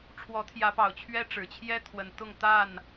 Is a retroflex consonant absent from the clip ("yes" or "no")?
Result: no